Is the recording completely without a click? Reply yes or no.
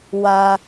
yes